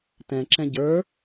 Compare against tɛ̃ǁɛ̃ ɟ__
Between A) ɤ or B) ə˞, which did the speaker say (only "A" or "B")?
B